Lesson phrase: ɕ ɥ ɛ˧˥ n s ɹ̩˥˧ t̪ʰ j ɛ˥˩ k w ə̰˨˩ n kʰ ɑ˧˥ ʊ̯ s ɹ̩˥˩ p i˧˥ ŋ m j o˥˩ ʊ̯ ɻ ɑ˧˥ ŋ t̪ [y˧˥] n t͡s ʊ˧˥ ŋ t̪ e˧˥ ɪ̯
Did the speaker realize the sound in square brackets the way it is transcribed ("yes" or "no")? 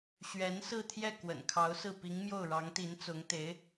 no